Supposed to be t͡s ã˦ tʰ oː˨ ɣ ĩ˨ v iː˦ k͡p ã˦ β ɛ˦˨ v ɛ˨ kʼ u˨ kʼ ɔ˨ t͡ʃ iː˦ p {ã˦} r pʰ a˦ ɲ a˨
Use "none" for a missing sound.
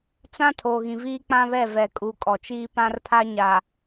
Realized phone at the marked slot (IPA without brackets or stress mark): ã˦